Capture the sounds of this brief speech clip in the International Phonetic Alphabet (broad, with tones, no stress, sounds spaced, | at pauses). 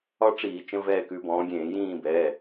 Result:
ɒ˥ ʈ͡ʂ iː˧˩˧ t͡ʃ ə̃˧˥˧ v ɛː˦˨ k ʉ˨˦ b ɔ̃ː˨˦ ɡʲ ẽː˧˩˧ j ĩː˦˨ b ɛː˩˧˩